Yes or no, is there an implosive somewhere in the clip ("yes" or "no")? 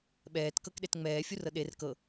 yes